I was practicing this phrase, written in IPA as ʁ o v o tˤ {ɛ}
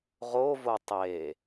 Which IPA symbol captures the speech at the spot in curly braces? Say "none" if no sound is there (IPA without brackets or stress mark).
e